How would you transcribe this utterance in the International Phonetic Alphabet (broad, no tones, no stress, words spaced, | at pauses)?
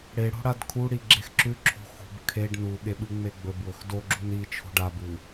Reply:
ɽeɽo̤ɽad kʰuɽiɡ͡ǁex ǁʉǁʰo̤ xṳb kʰeɖ nuɠeɓɨŋ͡me ɡ͡bɵbwɵx doɡ͡ǁun it͡ʃʰo̤ɖ abɨ